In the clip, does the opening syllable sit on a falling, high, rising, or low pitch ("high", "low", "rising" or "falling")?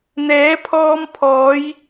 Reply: rising